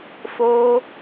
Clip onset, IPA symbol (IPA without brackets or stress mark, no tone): f